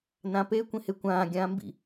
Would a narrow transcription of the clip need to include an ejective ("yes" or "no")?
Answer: no